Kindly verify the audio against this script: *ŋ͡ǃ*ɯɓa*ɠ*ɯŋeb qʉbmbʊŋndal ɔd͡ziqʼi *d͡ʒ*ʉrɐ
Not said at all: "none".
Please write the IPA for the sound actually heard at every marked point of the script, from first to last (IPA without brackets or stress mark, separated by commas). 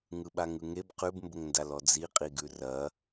ŋ, ŋ, ɡ